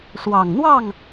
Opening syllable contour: low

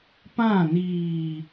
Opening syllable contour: falling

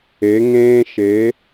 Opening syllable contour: rising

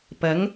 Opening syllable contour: rising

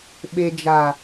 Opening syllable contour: low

